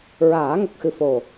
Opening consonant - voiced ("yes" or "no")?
yes